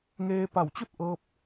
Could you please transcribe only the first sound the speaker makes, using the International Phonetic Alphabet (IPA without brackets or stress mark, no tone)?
ŋ